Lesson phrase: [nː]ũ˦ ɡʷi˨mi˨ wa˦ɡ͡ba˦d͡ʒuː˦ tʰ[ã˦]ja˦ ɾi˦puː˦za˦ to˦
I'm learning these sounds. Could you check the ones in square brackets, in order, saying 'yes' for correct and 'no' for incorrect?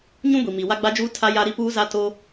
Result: no, no

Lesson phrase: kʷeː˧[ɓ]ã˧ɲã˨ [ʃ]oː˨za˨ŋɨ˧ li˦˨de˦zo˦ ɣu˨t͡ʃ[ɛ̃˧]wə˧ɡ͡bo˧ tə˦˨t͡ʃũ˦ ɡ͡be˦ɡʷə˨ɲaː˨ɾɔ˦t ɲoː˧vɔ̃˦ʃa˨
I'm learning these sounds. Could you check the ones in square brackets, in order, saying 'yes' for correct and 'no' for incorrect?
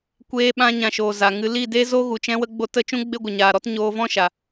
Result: yes, yes, yes

